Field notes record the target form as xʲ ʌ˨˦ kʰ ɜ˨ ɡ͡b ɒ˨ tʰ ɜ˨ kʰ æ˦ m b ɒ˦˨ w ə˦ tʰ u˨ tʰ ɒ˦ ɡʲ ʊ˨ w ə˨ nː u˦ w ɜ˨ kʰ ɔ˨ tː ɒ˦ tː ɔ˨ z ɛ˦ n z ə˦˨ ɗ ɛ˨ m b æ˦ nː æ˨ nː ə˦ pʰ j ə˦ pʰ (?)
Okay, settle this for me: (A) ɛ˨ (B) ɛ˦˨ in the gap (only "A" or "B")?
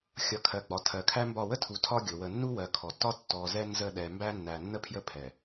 A